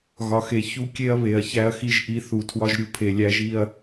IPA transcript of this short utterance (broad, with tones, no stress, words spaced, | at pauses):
ɣɒ˨xe˨ çu˦kʲe˦ɐ̯ βe˨ɐ̯ çæ˦ɐ̯xi˦ʒ ʔi˦ θu˨ tʰwɒ˦ʒɾʲu˨pʰe˨ lʲæ˦ʒi˦ɐ̯